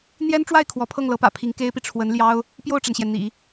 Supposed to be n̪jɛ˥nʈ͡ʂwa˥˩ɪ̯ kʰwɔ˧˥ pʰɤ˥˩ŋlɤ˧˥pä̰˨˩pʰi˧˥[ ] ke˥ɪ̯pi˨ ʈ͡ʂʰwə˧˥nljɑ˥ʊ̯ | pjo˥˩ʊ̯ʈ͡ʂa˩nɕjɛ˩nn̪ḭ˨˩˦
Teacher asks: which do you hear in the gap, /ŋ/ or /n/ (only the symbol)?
ŋ